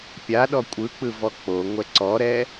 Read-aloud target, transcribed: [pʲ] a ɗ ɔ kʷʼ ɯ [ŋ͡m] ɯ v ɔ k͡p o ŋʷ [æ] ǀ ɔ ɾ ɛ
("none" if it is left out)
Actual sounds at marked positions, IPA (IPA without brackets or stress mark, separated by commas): pʲ, k͡p, ɛ